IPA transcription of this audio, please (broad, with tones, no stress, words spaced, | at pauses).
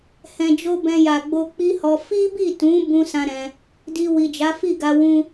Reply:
hɛ̃˨d͡ʒo˧ bɛ̃˧ja˨ɡ͡bo˧ k͡pi˦hɔ˧ fi˦bi˦˨tũ˨˦ bũ˦sã˦ ɾɛ̃˧ | di˧wi˨ d͡ʒa˨˦fi˦˨ɡa˧ wũ˦